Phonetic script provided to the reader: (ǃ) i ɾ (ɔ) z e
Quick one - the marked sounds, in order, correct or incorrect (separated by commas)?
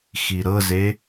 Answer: incorrect, incorrect